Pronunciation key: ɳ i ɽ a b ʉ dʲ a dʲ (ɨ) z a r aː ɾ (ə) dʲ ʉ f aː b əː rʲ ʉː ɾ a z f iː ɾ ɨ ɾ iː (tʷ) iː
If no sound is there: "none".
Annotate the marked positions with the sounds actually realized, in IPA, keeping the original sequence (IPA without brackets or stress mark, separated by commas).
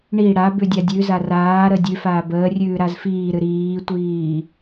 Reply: ʉ, ə, tʷ